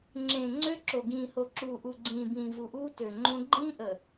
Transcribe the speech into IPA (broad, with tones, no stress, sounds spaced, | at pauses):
ŋ͡ǁ ẽː˨ ŋ͡ǀ ø˦ ǁ o˨ ɡ ĩː˨ h o˨ ǁ uː˨ ʔ u˨ ɡ͡ǀ ĩː˨ b ĩː˨ v u˨ ʔ uː˦ t ø˨ ŋ͡ǃ õ˦ ɡ͡ǃ ĩː˦ ʔ ə˨